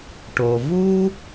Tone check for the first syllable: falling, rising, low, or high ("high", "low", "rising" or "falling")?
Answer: low